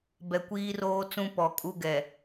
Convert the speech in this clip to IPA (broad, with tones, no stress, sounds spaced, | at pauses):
b ɛ˨ kʷ iː˦ r oː˦ t͡s ũ˦ p ɔ˨ kʼ u˦ ɡ ɛ˨